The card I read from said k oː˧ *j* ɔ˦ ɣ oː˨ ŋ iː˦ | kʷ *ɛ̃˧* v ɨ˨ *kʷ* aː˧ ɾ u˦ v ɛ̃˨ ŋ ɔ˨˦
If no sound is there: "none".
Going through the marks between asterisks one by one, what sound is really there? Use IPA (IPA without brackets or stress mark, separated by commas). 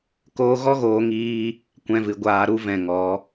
ɣ, ɛ̃˧, ɡʷ